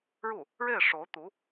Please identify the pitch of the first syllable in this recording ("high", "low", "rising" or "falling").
falling